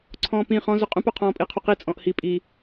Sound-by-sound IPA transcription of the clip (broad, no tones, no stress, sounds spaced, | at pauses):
ǀʰ ɔ̃ː p ĩ χ ɔ̃ z ʊ qʼ ũ p o qʰ ɔ̃ː pʼ i qʰ u q i t͡sʼ ɔ̃ ʔ h i pʼ i